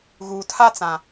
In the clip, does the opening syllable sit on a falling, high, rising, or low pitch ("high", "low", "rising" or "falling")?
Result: low